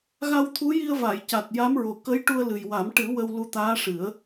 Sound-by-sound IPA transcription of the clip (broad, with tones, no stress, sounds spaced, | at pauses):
ɣ a˧ w t̪ʰ u˧˥ j i˧ ə̯ v a˨˩˨ j c a˨˩ t̚ j a˧˥ m ɹ o˨˩ k ə˧˥ j ʈ u˧ ə̯ l ɨ˨˩ j w a˨˩˦ m ʈ ɨ˨˩˦ w ə˧ w l u˧˥ t̪ aː˧˥ ʂ ɨ˨˩˦ ə̯